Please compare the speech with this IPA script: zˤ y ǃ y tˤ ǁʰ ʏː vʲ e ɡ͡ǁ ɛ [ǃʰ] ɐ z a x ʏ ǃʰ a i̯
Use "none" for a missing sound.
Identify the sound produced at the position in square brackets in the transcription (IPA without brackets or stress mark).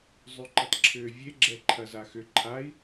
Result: ǃʰ